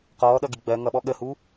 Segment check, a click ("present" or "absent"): absent